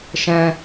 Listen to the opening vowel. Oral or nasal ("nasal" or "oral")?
nasal